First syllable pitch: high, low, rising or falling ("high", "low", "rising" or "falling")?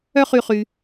high